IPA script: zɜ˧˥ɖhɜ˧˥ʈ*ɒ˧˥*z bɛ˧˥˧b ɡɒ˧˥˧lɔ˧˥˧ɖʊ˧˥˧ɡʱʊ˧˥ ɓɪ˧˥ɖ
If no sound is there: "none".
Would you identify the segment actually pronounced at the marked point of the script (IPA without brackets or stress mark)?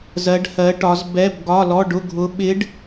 ɒ˧˥